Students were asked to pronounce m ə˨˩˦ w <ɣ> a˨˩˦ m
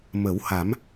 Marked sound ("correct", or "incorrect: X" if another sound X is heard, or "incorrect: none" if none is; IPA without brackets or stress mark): incorrect: h